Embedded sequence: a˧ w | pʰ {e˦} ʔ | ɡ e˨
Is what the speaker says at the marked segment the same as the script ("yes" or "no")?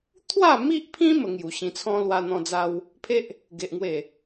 yes